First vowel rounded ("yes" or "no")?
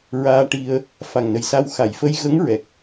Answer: no